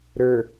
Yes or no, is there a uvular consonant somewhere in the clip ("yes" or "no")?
no